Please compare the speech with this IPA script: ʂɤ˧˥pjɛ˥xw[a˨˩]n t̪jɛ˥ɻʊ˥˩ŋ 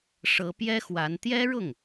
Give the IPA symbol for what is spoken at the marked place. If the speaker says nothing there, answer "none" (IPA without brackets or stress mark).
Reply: a˧˥